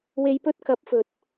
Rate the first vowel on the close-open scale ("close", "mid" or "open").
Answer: mid